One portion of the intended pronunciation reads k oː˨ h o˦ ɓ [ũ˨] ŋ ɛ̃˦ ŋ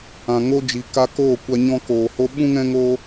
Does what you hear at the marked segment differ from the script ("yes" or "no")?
yes